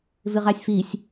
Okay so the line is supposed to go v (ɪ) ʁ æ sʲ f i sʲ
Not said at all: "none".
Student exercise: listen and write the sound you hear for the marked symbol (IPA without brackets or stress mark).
ɪ